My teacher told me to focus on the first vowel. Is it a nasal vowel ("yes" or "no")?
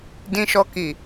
yes